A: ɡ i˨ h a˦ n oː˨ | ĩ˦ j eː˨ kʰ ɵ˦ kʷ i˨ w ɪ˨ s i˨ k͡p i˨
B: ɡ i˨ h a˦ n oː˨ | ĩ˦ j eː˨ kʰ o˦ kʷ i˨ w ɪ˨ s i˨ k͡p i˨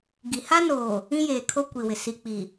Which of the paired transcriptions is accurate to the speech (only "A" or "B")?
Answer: B